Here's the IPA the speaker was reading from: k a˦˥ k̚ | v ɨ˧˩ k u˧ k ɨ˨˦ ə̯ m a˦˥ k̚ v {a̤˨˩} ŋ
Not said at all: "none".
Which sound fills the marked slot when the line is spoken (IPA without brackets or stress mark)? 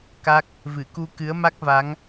a˨˦